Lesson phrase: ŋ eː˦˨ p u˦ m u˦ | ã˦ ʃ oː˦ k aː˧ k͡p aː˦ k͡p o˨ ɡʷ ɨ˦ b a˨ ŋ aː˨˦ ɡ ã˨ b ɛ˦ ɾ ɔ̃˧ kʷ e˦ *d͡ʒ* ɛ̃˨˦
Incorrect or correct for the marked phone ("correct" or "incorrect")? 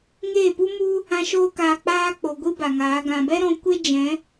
correct